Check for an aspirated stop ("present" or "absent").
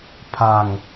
present